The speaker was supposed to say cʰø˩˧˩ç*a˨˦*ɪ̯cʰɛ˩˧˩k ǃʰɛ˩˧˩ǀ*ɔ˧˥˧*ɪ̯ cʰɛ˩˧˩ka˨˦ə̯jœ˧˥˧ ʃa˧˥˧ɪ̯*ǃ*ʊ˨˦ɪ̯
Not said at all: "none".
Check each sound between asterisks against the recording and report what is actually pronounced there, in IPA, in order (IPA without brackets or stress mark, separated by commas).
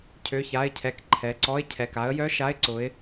a˩˧˩, ɔ˧˥˧, ǀ